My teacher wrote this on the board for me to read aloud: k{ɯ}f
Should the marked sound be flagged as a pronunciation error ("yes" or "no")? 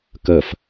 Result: yes